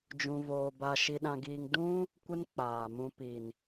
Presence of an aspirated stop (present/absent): absent